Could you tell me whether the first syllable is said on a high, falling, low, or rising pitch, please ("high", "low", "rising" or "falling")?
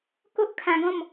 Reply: high